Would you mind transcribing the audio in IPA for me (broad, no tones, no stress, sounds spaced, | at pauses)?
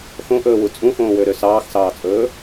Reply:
x õ ʔ ɵː w u t͡sʼ ũ x õː w ø ɾ ø s ɑː x s ɑː t͡sʼ ɵː